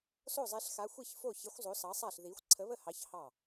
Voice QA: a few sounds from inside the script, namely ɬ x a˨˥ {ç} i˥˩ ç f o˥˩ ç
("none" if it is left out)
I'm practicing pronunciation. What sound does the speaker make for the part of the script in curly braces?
xʷ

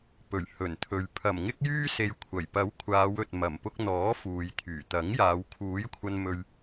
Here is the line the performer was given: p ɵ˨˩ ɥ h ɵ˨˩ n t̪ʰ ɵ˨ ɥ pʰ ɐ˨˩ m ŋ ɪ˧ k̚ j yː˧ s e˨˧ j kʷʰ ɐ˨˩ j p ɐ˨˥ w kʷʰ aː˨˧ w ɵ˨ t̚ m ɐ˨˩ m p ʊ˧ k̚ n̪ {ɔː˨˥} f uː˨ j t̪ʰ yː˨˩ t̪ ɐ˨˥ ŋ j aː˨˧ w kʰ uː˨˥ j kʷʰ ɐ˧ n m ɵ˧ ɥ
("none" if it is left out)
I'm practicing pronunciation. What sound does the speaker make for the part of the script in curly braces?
ɔː˨˥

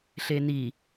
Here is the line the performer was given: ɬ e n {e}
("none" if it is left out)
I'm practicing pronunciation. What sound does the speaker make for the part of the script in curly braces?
i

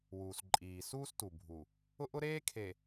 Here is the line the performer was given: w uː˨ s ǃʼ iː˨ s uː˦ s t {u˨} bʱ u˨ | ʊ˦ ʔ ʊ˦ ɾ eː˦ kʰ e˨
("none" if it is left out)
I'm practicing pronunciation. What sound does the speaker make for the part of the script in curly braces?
u˨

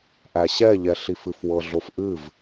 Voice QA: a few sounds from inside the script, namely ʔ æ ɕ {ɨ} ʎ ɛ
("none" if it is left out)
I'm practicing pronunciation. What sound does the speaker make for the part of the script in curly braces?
ɛ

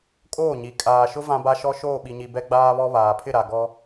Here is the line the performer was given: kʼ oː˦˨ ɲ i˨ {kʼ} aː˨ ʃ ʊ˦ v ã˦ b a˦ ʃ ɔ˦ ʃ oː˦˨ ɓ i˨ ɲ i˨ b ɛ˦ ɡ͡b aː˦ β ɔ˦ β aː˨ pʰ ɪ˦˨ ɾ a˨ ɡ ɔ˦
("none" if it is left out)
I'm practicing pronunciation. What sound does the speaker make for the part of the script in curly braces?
kʼ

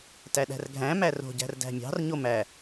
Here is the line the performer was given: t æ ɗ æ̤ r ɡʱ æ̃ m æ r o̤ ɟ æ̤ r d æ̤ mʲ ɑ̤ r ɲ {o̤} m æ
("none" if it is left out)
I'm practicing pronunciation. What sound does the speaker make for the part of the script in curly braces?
o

